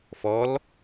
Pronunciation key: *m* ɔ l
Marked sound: incorrect: f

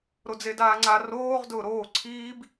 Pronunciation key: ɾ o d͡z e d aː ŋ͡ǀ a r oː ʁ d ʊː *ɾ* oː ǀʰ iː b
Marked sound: correct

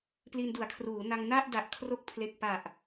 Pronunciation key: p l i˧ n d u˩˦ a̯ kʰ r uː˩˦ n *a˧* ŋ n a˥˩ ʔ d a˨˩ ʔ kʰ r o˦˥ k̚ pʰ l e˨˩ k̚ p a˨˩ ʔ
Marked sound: correct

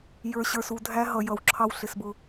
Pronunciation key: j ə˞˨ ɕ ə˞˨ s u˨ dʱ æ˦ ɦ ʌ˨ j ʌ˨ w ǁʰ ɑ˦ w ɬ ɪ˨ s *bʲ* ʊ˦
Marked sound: incorrect: b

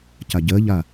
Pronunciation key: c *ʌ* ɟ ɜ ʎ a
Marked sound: incorrect: a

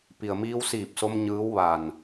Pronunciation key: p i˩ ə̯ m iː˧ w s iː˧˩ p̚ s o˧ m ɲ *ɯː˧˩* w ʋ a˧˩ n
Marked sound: incorrect: ɯː˧˥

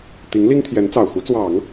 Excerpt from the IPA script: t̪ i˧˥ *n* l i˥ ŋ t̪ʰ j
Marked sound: incorrect: ŋ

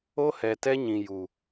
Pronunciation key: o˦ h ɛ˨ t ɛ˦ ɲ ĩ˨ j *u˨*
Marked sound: correct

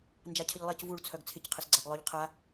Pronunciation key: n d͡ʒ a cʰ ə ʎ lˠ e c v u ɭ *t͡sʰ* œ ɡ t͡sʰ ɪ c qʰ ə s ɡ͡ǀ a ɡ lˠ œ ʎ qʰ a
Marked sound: correct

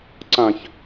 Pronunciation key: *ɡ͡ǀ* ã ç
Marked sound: incorrect: ǀ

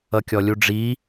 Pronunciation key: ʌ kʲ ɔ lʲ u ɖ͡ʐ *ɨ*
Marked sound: incorrect: i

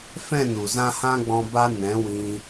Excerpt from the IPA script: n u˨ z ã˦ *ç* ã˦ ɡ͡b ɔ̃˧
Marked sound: incorrect: h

